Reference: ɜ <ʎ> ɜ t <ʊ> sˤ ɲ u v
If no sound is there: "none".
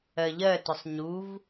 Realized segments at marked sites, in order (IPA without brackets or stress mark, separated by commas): ʎ, ʊ